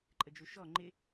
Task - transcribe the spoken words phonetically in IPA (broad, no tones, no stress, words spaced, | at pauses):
ǃʼəd͡ʒuʃɔ ŋ͡ǃɪ